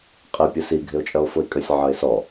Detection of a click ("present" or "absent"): absent